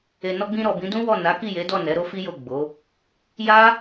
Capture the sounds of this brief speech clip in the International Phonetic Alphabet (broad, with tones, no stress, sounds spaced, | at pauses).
e˨ n ɔ˧ ɡ͡b ĩ˧ ɾ ɔ˨ b ĩ˨˦ d ũ˦ w ɔ˦˨ n a˨˦ k i˦˨ j e˨˦ d ɔ˦˨ n ɛ˨˦ ɾ o˦ f i˦ j o˦˨ ɡ͡b o˨˦ | j a˦